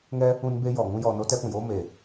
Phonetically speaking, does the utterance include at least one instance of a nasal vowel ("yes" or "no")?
yes